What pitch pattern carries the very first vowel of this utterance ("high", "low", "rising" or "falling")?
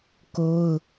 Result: high